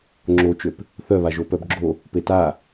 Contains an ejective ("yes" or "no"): no